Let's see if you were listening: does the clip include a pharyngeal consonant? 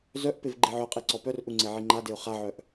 yes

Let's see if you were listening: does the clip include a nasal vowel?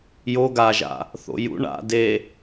no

